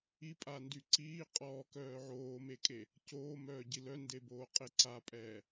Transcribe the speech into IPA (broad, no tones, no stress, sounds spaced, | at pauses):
i pʼ a n d y ǀ iː qʼ ɔː k œː ʕ oː m e kʼ e | c oː m œː ɟ i l œ n d e b oː qʼ e ǀ a pʼ ɛː